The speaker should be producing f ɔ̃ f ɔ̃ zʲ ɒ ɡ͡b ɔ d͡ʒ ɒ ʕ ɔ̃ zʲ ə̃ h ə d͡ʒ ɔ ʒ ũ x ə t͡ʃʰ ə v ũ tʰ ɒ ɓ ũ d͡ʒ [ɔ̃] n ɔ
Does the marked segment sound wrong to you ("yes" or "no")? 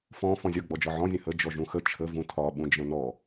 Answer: yes